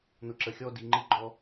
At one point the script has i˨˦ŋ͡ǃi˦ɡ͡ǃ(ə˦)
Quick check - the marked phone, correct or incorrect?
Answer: incorrect